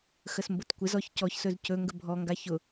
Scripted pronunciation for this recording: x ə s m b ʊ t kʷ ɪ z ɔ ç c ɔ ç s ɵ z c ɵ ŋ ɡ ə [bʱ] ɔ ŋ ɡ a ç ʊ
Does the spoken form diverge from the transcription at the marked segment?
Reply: no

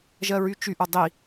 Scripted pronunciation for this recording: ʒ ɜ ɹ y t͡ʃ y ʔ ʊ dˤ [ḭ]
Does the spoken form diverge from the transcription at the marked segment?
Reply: yes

